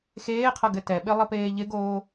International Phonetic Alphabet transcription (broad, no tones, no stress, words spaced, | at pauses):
xeːqʰʌɡɘ tɛɓɪlˠəpeː ʎɪɡoː